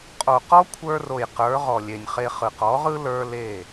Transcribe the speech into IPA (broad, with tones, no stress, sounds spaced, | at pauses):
qʼ o˨ q ɔ˦ kʷʰ ə˞˧ r o˨ j q ə˞˨˦ ʁ ɔ˨ lʲ e˨ nʲ χ e˧ χ ɯ˨ q ɔ˨˦ ʁ ɯ˦ l ə˞˦ l e˦˨